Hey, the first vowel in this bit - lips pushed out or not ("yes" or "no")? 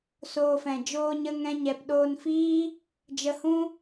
yes